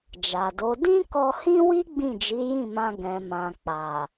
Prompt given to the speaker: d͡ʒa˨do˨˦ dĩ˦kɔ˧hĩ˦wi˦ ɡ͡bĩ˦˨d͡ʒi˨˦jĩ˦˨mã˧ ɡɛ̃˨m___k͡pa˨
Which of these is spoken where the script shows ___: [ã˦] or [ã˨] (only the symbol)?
ã˨